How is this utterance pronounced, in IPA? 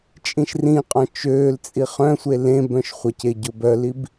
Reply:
t͡ʃʼ ĩ ʃ r ĩ qʼ ɔ̃ t͡ʃ øː l t͡sʼ i χ œ̃ sʷ e l ẽ b œ̃ ʃ χʷ ɐ c e ɟ ʊ b œ l i b

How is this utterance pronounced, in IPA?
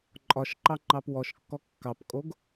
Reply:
ǃʼ ɒ ʃ ǃ ɑ ŋ͡ǃ ɑ p w ɔ ʃ kː ɔ kː ɑ p kʼ o ɡ

